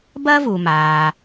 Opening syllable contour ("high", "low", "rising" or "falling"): high